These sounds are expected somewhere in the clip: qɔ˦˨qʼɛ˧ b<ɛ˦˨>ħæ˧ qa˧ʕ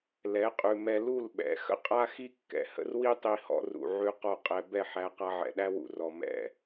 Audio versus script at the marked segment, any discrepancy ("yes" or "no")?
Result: no